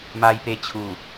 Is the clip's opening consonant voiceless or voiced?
voiced